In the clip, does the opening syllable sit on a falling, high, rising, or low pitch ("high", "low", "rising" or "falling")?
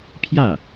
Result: falling